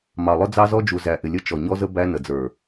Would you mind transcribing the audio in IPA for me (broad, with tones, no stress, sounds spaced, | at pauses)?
m ɑ˨ lˠ ʊ˦ d͡z ɑ˦ z ɔ˦ d͡ʒ u˨ z æ˨ ʔ ɪ˨ lʲ ə˦ t͡ʃ ɔ˨ ɲ ɔ˦ z ə˦ b æ˦ n ə˨ d͡z ə˞˨